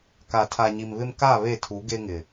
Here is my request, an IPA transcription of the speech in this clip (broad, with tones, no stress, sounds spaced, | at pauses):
k a˨ tʰ a˨ ɲ i˨ m β ɪ˦ m k a˦˨ β e˦˨ tʰ u˨˦ ɡ e˦ ŋ ɪ˨